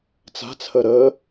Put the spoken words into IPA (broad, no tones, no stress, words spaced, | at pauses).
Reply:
t͡sa̤t͡sʰə ɾə